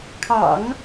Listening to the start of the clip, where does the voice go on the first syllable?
low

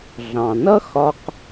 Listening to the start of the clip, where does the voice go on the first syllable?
low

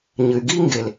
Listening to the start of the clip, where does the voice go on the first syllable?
low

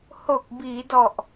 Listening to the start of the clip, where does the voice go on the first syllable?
low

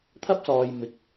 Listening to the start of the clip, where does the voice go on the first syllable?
high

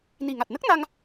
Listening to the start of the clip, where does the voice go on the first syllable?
low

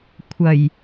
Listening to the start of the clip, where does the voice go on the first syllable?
low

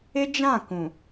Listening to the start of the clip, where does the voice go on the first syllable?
high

